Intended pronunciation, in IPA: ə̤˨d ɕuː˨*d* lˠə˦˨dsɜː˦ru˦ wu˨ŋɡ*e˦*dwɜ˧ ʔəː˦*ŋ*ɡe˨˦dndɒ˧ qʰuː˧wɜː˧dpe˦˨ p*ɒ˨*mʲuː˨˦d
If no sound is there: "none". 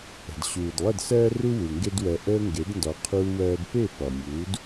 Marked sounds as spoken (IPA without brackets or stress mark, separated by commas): d, e˦, ŋ, ɒ˨